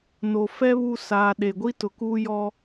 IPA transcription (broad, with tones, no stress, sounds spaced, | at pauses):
n o˨ f ɛ˦ β u˦ s aː˨ ɗ e˨ ɡʷ i˦ t ʊ˨ k uː˦ j ɔ˦